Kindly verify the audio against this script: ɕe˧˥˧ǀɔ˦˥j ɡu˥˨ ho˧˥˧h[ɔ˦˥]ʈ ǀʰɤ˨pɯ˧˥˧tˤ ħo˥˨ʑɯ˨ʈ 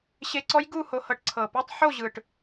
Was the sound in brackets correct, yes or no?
no